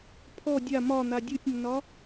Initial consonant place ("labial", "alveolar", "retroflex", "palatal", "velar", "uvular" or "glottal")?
labial